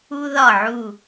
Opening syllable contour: high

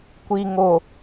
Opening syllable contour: low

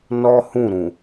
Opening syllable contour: high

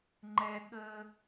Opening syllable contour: low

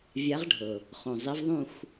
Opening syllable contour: rising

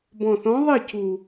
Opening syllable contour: low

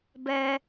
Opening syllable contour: high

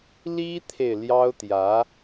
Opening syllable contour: high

